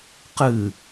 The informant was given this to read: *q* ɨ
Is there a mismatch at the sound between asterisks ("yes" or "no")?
no